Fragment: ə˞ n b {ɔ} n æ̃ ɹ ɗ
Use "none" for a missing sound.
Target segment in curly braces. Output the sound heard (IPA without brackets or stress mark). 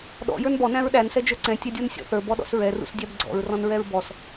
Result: ɔ